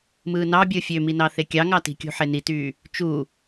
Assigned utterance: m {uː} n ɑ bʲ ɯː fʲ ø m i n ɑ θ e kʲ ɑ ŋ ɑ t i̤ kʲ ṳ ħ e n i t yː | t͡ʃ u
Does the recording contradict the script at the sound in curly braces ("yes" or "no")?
yes